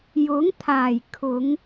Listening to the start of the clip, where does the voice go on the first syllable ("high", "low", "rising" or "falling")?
rising